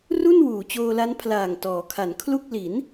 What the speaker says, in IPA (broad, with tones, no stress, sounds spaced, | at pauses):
r u˥˩ n w uː˩˦ t͡ɕ oː˧ l a˦˥ n pʰ l aː˨˩ ŋ t ɔː˩˦ kʰ a˩˦ n kʰ l u˥˩ k̚ l i˩˦ n